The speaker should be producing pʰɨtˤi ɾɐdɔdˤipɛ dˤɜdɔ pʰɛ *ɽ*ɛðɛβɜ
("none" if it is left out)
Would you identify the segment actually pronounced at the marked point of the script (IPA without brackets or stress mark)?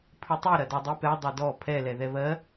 l